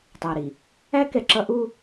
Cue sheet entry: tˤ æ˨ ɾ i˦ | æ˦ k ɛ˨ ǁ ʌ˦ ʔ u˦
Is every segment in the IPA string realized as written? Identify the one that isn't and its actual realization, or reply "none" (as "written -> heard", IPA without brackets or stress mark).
i˦ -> i˨